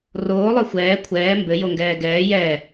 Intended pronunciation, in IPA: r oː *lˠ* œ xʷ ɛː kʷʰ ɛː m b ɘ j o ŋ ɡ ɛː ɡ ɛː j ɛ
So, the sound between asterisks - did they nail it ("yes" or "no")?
yes